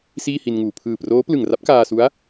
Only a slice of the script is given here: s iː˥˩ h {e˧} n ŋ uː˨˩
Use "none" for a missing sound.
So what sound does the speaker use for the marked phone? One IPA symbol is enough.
i˧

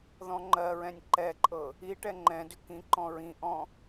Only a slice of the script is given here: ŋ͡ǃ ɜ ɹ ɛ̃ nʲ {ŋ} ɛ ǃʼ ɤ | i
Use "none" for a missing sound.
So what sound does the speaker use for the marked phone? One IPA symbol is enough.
ǃ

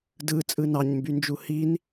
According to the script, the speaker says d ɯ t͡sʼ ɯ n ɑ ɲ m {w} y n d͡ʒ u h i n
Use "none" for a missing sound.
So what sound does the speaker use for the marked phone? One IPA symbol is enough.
b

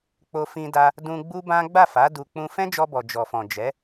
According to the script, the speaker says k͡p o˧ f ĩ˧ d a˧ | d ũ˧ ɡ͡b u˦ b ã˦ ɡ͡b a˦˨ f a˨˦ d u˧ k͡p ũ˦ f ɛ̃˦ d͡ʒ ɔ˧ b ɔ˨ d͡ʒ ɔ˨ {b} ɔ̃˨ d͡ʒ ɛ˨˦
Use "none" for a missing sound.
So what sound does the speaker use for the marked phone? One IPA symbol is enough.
f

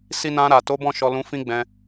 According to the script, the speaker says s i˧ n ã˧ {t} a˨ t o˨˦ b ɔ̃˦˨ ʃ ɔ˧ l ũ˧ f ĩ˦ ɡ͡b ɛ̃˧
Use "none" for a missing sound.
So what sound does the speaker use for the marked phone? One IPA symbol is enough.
ɾ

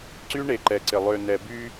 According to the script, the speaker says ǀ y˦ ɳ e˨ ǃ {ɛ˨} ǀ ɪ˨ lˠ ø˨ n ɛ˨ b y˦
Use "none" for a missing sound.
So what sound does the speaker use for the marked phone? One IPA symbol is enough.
ɛ˨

